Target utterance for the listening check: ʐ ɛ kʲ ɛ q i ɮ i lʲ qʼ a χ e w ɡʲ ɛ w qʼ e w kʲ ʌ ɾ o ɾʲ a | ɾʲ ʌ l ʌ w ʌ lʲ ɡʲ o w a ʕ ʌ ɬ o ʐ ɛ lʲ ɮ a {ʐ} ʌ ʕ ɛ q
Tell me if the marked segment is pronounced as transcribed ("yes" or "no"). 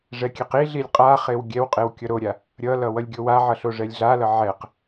no